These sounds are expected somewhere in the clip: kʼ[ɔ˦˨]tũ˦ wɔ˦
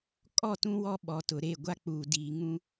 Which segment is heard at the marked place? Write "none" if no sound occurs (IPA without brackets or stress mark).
ɔ˦˨